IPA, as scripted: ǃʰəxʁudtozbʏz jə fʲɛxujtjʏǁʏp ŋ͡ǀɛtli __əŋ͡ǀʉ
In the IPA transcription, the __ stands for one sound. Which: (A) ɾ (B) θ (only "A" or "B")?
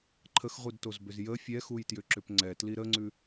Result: A